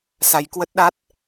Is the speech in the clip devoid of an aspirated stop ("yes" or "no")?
yes